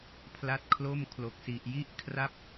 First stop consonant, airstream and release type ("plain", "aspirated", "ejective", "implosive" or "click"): aspirated